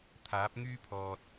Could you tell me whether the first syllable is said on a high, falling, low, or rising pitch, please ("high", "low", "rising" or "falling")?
rising